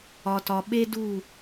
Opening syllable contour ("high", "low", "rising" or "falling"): low